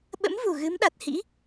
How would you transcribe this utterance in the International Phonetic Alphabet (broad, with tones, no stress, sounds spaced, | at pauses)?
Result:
ɓ ə̰˧˥ m v u˨˩ ɣ ɨ˨˦ m ɗ a˨˩ t̚ h ḭ˧˥